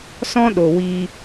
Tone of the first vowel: high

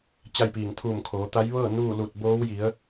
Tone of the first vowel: falling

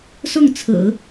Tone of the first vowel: falling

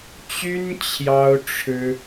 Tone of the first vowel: high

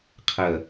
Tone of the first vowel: low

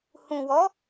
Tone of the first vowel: low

